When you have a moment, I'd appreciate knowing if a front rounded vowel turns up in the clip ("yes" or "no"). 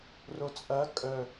yes